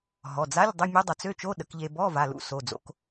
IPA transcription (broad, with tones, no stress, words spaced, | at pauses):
ɦɔ˩˧˩d͡za˧˥˧lʲdˤə˧˥˧ mʲu˧˥dˤœ˩˧t͡s ø˧˥˧t͡ʃo˧˥˧ɗə˩˧k ʎe˧ bɔ˧˥˧va˩˧˩lṵ˧˥ so˩˧˩d͡zo̰˧k